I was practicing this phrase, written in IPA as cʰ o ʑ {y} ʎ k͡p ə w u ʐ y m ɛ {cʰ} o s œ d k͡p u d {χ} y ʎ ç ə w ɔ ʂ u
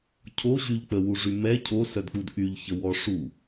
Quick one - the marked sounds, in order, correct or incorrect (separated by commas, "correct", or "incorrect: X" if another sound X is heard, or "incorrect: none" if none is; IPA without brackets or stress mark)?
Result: correct, correct, incorrect: ʔ